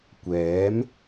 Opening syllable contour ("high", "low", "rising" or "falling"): rising